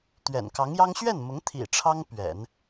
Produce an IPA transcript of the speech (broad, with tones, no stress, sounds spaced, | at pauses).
t̪ ɥ ɛ̰˨˩ n k ɑ˧˥ ŋ j ɑ˥ ŋ ɕ ɥ ɛ˥˩ n m ʊ˧˥ ŋ t̪ʰ ḭ˨˩ ʈ͡ʂʰ ɑ˥ ŋ p ɥ ɛ̰˨˩˦ n